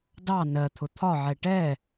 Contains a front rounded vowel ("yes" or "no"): no